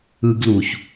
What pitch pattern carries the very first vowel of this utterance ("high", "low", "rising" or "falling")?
high